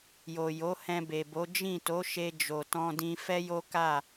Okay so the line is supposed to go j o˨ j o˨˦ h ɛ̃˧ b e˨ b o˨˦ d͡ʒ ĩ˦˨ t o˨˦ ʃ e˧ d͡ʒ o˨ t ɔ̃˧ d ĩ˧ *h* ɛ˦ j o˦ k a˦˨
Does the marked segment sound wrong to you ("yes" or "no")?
yes